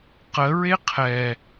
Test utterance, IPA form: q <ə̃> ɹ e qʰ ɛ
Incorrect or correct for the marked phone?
incorrect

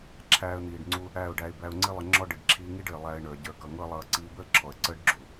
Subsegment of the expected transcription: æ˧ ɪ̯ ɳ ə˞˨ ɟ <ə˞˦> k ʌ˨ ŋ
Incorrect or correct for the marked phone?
incorrect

